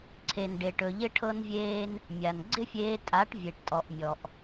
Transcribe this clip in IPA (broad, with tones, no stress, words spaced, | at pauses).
ǀʰe˨nɖe˨ʈɵ˨ ʎɪ˦ʈʰɤ˦nvʲeː˦n | mʲa˨n ɡ͡ǀɪ˦fʲeː˧tʼa˨˦ʈ vʲe˨ʈtʼɔ˨ʔ mʲɔ˨ʔ